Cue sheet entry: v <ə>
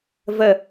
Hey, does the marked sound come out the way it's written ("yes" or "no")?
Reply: yes